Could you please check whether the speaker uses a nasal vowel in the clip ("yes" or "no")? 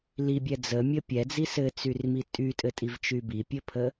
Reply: no